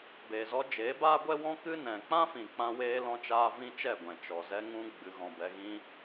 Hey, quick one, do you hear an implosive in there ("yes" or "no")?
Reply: no